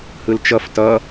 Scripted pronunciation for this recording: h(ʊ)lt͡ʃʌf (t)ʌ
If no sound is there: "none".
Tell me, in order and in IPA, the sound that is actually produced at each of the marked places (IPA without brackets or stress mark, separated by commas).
ɯ, t